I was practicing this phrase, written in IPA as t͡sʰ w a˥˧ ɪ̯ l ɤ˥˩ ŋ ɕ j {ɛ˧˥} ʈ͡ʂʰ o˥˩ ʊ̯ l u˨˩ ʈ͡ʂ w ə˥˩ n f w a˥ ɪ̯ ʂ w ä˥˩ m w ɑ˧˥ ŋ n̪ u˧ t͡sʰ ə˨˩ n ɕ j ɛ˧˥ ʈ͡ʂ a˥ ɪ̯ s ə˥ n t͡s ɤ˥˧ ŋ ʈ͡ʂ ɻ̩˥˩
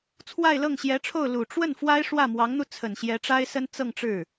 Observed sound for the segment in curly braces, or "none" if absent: ɛ˧˥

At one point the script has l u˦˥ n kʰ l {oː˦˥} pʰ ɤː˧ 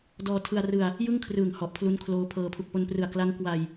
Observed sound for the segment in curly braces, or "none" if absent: oː˦˥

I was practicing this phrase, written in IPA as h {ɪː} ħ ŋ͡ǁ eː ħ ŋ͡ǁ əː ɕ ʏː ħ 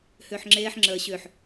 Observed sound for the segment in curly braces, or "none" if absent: ʏː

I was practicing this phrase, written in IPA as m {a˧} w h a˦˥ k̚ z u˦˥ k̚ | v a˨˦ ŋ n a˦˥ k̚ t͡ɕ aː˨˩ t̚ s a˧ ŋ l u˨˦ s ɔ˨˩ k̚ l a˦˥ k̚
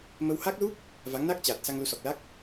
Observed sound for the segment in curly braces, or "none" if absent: ə˧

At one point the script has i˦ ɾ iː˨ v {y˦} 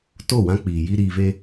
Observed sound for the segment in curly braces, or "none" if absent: e˦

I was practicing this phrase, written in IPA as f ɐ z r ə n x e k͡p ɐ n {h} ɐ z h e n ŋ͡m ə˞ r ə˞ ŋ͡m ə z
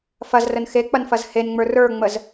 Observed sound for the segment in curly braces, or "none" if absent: f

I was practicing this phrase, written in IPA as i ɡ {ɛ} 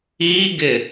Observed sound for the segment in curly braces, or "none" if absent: ɪ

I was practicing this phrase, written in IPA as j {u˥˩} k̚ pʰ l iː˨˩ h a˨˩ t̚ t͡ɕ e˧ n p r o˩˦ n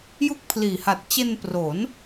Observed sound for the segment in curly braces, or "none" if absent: u˥˩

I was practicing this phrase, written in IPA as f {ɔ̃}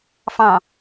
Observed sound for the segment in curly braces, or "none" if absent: ɑ̃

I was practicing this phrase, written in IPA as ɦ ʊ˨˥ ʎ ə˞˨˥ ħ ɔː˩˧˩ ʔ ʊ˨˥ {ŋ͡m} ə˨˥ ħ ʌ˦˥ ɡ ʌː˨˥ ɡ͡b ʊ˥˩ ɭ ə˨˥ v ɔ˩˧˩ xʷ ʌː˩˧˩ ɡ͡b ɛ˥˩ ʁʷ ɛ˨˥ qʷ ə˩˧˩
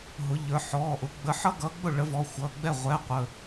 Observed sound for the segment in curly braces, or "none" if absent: ɡ͡b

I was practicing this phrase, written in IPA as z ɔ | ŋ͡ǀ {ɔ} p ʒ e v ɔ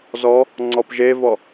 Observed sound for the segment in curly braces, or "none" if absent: ɔ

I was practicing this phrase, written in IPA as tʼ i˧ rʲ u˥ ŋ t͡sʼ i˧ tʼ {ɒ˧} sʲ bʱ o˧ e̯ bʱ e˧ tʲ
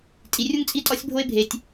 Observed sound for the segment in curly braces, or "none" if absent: ɒ˧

